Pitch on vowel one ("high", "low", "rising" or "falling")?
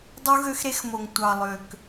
high